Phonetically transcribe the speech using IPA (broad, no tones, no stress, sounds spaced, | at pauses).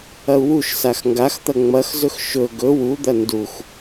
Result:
ɐ u̯ w u ʃ s a x ŋ ɡ a x t̪ ɐ ŋ͡m ɐ x z ɵ x ʃ ɵ ɡ ɵ w u d̪ ɐ n d u x